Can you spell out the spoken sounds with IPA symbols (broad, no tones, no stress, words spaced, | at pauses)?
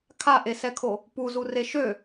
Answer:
kʰaʔesɛkʰo | puzure ʃø